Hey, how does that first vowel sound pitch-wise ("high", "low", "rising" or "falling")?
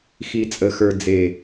low